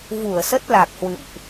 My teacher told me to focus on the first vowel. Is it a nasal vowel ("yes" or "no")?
no